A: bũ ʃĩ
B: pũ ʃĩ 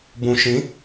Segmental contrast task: A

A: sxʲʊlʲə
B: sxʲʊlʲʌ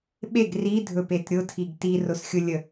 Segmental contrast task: A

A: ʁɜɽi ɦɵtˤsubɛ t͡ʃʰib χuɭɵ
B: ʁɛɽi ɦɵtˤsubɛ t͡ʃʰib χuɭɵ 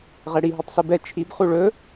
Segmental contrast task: B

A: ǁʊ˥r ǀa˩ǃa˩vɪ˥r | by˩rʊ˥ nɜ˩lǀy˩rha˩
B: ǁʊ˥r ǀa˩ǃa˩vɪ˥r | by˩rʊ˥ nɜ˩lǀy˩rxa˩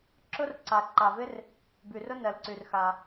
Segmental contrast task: B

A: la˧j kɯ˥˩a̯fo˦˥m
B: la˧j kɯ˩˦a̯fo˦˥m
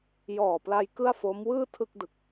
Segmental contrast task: A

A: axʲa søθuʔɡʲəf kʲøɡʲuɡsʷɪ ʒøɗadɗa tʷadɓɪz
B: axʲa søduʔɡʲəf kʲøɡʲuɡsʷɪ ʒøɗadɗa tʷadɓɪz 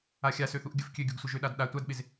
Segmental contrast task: A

